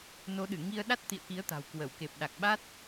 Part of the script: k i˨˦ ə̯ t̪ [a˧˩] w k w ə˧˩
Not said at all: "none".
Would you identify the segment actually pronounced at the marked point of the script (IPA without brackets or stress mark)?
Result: a̤˨˩